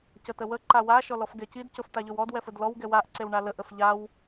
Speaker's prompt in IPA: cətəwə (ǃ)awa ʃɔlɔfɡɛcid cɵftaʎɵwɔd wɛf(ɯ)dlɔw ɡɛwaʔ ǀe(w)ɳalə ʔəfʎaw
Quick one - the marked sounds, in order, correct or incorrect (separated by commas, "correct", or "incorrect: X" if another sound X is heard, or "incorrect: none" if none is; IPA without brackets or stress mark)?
correct, incorrect: ə, correct